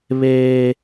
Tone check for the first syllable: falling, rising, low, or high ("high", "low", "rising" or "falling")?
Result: high